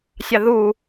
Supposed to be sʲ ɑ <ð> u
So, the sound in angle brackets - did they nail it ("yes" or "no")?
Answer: yes